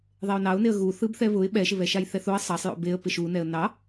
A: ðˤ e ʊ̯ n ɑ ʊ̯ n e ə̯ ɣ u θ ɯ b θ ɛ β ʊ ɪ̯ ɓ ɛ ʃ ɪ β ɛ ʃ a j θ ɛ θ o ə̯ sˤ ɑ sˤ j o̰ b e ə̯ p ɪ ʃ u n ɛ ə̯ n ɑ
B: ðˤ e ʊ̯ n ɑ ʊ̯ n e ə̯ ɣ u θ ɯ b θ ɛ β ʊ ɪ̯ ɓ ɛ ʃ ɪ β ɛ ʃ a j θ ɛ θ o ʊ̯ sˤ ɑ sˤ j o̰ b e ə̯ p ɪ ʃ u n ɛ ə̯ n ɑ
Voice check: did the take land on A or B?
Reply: A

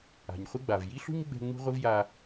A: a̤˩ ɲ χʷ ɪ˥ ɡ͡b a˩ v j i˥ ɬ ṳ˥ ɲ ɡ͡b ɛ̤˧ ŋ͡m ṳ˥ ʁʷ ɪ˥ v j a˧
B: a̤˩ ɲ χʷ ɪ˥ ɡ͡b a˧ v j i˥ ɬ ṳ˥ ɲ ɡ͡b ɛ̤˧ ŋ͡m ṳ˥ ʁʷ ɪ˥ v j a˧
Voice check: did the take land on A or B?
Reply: A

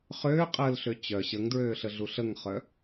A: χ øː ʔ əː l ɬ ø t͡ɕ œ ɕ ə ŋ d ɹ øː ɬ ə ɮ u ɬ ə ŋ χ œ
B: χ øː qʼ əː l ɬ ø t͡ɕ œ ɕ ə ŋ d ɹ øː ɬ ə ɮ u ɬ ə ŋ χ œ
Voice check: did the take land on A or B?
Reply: B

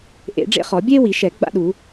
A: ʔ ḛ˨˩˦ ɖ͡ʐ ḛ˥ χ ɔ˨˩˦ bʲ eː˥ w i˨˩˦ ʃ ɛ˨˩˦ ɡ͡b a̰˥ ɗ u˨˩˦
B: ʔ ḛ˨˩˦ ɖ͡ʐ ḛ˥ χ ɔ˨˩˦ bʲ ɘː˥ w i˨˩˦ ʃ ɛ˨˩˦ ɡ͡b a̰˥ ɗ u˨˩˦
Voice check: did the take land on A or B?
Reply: A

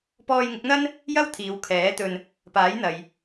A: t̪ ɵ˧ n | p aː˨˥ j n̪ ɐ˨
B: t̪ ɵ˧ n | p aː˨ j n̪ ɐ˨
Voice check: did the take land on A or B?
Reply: A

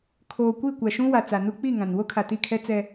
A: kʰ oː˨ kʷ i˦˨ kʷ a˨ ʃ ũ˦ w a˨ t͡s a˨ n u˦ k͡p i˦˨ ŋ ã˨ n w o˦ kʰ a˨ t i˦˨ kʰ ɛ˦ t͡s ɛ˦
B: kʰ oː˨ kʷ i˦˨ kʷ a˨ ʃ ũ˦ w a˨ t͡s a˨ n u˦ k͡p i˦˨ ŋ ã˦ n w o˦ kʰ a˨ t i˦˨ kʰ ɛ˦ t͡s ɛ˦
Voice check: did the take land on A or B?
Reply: A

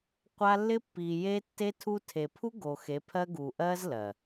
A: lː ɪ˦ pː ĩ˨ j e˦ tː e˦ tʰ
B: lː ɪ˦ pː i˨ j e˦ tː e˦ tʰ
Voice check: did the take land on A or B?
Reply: B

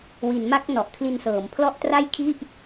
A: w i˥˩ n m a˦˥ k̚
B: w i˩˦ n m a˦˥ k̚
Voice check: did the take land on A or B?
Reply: B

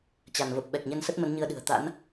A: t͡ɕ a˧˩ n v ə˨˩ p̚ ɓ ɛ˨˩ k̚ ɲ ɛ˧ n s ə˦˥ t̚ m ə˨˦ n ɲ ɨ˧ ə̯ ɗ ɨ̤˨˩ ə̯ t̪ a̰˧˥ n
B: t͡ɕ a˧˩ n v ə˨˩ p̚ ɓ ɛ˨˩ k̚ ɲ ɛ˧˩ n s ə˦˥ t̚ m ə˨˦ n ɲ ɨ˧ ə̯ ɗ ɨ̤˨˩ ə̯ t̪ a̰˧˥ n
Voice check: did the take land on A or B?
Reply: A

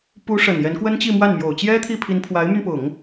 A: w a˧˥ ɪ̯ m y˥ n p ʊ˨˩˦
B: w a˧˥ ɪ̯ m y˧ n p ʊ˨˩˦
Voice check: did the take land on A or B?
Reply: B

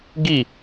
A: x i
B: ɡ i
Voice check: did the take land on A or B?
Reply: B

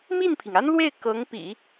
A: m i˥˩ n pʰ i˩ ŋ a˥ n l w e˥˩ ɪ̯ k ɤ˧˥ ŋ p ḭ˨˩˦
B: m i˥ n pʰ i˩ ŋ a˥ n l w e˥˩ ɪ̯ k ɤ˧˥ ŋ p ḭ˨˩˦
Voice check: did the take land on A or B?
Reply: A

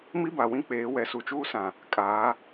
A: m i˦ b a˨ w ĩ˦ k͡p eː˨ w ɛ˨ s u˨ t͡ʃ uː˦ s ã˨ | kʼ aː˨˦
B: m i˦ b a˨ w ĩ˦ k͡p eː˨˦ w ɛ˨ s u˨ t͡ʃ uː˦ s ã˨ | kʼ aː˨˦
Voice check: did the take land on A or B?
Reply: B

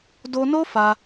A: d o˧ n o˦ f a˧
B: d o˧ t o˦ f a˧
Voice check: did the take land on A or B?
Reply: A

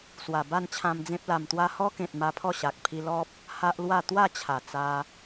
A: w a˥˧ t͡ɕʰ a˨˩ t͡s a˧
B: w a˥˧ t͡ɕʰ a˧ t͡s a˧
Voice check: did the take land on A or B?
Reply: A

